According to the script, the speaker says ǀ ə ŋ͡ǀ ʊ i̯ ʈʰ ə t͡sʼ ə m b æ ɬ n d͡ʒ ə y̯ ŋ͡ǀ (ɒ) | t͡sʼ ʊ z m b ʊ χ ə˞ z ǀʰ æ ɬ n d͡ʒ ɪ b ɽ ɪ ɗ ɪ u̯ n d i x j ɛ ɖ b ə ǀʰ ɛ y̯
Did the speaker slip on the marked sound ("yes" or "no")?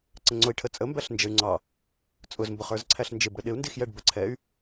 yes